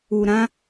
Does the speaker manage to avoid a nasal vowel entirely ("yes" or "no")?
no